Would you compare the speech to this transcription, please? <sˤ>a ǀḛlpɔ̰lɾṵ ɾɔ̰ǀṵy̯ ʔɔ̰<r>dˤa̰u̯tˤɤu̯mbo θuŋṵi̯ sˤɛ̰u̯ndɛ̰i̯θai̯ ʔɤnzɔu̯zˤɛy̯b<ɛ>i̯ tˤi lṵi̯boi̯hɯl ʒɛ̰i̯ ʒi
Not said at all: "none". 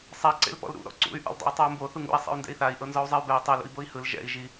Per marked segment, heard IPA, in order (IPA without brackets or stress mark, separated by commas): sˤ, l, ɛ